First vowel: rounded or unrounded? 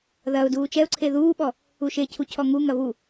unrounded